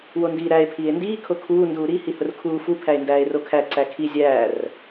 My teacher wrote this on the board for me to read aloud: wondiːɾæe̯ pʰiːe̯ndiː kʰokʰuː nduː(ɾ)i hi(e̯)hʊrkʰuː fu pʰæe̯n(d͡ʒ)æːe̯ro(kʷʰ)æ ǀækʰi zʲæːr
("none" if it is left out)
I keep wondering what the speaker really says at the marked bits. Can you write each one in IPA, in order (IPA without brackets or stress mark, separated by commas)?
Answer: ɾ, none, d, kʰ